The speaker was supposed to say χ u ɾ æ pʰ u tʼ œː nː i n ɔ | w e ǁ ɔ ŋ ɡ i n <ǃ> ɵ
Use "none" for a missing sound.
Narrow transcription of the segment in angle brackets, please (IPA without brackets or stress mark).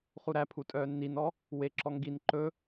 ǃ